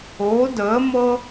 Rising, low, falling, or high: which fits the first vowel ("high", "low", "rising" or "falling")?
rising